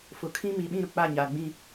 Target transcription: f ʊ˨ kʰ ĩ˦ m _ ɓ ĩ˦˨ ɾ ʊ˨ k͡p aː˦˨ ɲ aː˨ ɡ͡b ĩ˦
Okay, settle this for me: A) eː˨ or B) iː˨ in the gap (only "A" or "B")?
B